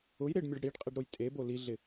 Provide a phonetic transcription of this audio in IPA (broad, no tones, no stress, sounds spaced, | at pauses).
ʊ j ɾ ɪ ɖ mʲ ɔ ɖ ɽ i ɖ qʼ i ɖ ɾ o j tʼ e b o l i ɮ ɪ